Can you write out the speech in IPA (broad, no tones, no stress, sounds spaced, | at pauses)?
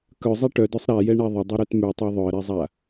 k œ zˤ ɛ ʈ œ d œ sˤ ɾ a j ɛ ɳ ɛ ðˤ ə dˤ u ɾ œ t m ʉ tˤ a ðˤ œ ə̯ ɾ ɛ zˤ a